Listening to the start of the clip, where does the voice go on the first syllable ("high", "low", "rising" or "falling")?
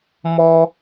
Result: high